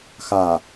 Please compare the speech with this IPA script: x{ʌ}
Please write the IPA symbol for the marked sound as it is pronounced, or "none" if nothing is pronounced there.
a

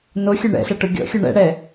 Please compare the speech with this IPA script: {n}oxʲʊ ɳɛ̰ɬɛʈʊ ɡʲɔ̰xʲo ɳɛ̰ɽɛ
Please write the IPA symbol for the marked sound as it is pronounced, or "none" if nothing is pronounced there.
n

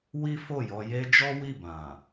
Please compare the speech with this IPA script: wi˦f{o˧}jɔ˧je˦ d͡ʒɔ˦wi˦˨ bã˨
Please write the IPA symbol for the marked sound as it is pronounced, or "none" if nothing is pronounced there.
o˦˨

